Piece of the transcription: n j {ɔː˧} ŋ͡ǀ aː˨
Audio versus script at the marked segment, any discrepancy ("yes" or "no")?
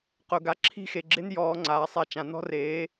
no